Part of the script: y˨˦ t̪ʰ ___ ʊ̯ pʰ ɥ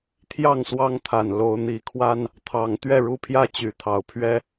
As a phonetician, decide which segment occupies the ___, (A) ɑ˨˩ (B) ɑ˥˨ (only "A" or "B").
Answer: A